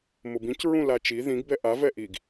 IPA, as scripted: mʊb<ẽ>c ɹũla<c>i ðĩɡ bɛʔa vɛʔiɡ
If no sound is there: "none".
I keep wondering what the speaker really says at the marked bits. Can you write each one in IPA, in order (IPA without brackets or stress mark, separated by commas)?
ĩ, t͡ʃ